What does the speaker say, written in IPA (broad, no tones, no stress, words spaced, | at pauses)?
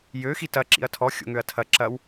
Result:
jø xitɐ ǁḭɐ̯tʰɔ xʲo̰ŋøɐ̯tʰɐ ǁɐw